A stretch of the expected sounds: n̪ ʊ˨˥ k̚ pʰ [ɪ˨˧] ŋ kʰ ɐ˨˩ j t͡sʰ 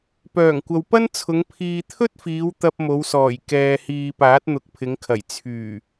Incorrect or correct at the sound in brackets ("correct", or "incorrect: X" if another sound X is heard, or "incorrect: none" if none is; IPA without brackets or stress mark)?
correct